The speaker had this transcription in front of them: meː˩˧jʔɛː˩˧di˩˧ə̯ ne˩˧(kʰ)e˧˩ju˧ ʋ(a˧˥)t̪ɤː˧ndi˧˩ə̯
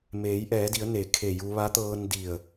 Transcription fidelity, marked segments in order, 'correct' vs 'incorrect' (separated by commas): correct, correct